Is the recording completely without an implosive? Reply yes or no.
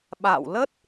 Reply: no